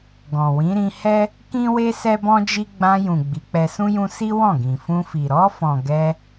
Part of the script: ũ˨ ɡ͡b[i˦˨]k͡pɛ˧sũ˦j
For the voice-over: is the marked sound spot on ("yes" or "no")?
no